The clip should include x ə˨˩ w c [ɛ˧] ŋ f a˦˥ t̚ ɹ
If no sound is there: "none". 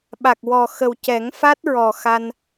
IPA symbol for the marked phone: ɛ˨˩˦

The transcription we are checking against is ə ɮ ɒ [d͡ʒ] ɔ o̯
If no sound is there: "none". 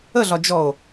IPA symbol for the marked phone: d͡ʒ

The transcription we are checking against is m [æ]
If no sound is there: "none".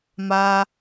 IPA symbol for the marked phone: a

